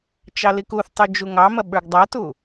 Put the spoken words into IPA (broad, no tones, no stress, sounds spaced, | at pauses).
t͡ʃ ɑ l i k u θ tˤ u d͡ʒ u ŋ ɑ m ɐ ɓ ə˞ ɡ dˤ ɐ t u